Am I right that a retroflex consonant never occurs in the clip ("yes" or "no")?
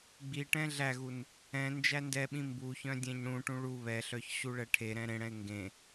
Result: no